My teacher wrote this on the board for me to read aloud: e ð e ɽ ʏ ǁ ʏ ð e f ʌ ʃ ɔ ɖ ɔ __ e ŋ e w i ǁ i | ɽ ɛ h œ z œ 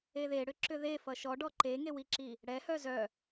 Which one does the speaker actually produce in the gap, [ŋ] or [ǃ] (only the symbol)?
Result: ǃ